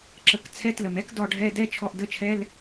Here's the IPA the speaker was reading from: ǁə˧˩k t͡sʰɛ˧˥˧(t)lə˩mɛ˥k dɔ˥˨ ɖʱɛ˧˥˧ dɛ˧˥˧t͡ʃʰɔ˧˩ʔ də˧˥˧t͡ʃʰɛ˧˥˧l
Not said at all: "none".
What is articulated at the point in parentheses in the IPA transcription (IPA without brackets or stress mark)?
t